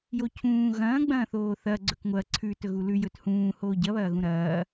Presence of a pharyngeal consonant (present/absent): absent